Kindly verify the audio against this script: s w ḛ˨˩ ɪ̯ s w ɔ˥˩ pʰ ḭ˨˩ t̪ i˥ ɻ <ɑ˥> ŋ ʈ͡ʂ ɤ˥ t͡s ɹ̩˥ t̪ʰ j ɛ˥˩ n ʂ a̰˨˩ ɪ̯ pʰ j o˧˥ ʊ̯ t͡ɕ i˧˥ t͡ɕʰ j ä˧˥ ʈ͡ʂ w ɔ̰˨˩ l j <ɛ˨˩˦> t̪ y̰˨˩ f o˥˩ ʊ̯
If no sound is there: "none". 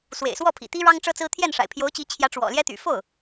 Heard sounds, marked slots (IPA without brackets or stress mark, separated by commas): ɑ˥, ɛ˥